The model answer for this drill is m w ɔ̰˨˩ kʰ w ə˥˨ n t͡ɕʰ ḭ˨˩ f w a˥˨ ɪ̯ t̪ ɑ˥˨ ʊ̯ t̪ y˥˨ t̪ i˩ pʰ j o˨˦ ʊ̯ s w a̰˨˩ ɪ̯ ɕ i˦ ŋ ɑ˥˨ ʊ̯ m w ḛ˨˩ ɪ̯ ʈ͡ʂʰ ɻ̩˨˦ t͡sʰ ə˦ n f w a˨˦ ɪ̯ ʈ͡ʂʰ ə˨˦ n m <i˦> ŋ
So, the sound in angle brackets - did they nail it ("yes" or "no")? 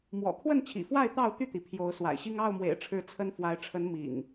no